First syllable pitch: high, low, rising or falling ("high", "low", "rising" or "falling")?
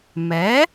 rising